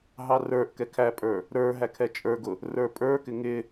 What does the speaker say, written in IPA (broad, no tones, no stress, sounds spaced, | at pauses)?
ɦ ɑ r ə˞ ʔ k ɛ kʰ æ pʼ ə˞ | ɾ ə˞ ɦ æ kʰ ɛ t͡ʃʼ ə˞ ɡ ʊ | r ə˞ pʼ ə˞ k ɪ ŋ ɪ